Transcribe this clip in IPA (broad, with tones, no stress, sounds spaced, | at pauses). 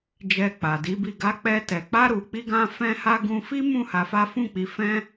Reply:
d͡ʒ ɛ˧ k͡p a˨ d i˨˦ b i˦˨ ɡ a˧ k͡p ɛ˧ t ɛ˨ k͡p a˧ ɾ u˨ k͡p i˧ ɡ ã˧ f ɛ̃˦ h a˦ ɡ ũ˧ f i˦ m ũ˦˨ h a˧ f a˦ f ũ˦˨ k͡p i˨˦ f ɛ̃˦